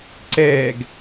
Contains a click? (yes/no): yes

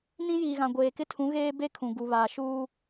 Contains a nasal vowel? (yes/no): yes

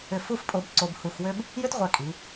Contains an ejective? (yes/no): yes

